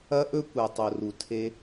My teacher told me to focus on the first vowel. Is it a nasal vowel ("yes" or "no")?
no